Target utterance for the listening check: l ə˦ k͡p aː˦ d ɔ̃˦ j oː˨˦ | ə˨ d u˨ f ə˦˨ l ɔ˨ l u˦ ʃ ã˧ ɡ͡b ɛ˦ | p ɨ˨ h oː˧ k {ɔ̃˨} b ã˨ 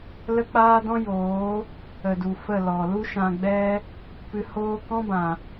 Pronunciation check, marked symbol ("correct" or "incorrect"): incorrect